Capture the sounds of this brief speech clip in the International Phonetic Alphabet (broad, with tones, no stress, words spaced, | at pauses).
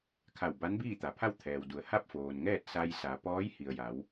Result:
kʰa˧˩w ba˧˥n biː˥˨t̪a˩˧pʰa˥˨w t̪ʰɛː˩wdu˩˧ə̯ ha˥˨p̚foː˩nŋɛː˥˨t̚ sa˧j sa˩˧ pɔː˧˥jhi˩ə̯ja˩˧w